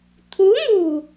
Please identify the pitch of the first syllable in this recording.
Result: rising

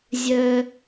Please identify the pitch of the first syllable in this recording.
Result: low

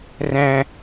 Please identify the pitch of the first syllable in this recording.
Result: high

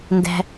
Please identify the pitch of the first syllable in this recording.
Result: high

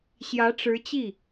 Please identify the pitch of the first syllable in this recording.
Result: rising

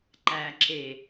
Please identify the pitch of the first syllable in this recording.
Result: low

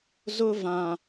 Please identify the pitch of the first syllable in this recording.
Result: high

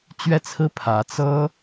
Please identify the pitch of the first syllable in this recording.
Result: falling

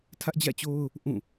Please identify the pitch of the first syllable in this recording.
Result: high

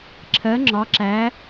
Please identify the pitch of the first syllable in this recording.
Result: rising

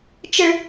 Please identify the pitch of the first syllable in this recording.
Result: high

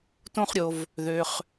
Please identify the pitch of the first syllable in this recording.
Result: high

